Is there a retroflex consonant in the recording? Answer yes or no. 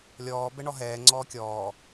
yes